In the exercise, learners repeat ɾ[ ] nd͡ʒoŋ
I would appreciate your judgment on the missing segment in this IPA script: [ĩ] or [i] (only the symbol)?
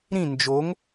ĩ